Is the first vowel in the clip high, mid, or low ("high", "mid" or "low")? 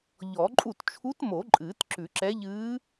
mid